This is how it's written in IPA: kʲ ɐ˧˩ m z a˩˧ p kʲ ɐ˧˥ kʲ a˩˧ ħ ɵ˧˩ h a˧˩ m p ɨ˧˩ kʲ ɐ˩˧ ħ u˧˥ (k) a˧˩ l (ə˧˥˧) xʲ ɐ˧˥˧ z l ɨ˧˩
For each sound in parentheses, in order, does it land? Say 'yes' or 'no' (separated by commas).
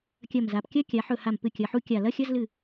no, no